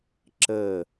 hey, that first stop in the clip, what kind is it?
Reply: click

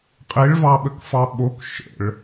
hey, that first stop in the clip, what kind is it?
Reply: ejective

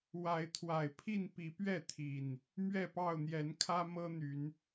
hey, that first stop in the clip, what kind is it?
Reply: aspirated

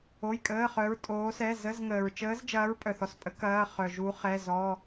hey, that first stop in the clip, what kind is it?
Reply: ejective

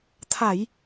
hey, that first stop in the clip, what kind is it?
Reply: aspirated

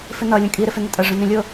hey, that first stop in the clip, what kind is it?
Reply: ejective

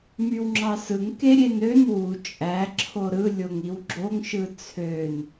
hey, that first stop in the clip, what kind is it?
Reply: click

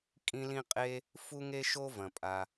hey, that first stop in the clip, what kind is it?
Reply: ejective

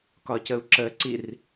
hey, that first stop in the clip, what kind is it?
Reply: plain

